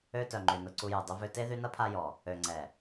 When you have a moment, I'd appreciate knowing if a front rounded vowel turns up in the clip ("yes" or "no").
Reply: yes